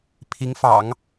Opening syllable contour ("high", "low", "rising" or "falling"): rising